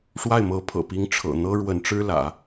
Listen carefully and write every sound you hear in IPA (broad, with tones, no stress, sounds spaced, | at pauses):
ʂ w a˥˩ ɪ̯ m ɤ˧˥ pʰ ɤ̰˨˩ p i˧˥ ŋ ʈ͡ʂʰ ɤ̰˨˩ n̪ ɤ˥ ɻ w ə˧˥ n ʈ͡ʂ ɻ̩˥ l ä̰˨˩˦